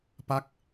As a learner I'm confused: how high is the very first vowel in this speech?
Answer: low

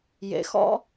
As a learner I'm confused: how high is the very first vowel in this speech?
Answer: mid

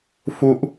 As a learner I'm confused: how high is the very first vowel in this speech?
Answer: high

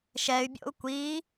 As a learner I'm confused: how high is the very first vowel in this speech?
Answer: mid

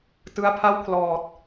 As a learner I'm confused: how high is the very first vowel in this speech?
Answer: high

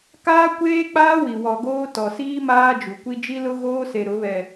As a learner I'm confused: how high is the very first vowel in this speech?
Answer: low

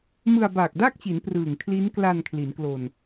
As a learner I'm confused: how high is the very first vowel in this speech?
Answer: high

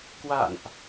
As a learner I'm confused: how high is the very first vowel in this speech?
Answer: low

